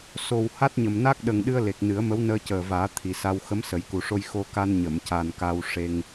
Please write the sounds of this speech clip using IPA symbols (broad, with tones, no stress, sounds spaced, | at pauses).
s o˨˩ w h a˦˥ t̚ ɲ ə˨˩ m n a˦˥ k̚ ɗ ə˨˩ ŋ ɗ ɨ˧ ə̯ l e˨˩ k̚ n ɨ˨˩˦ ə̯ m ə˧˥ w n əː˧ c əː˨˩ v aː˨˩˦ t̪ʰ i˨˩ s a˧ w x ə˧˥ m s ə˨˩˦ j k u˨˩ ʂ o˧ j x o˧ k a˧ n ɲ ə˨˩˨ m c a˨˩ n k a˧ w ʂ e˧ ŋ